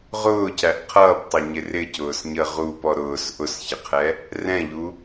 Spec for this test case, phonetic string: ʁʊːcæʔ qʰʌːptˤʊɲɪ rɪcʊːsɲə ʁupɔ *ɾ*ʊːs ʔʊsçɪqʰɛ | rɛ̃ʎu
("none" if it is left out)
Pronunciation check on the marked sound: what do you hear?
ɾ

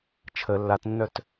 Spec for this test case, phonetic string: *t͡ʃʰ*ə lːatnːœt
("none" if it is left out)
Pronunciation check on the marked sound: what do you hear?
t͡ʃʰ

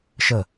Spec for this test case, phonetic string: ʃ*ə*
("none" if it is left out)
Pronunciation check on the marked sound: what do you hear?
ə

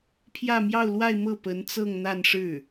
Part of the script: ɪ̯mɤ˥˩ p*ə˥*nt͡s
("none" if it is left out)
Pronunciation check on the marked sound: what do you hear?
ə˧˥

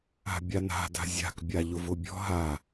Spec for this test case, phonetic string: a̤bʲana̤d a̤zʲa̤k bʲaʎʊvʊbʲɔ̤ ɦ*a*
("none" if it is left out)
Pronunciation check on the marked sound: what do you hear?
a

